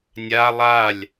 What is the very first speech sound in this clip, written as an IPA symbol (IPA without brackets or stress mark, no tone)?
nʲ